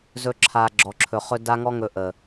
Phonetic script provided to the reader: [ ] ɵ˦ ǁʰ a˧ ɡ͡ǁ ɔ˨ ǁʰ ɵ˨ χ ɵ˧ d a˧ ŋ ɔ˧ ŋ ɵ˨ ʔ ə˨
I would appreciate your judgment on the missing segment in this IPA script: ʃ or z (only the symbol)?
z